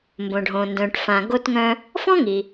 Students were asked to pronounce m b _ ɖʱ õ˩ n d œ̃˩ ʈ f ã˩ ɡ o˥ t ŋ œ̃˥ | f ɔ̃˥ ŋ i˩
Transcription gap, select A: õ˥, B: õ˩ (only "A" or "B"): B